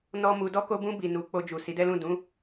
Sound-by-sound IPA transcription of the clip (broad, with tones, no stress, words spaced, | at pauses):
nɔ˦mu˧ dɔ˧ko˧bũ˧ bi˨ nu˨˦ k͡po˧d͡ʒu˨ si˨˦dɛ˦lũ˦˨ dũ˨˦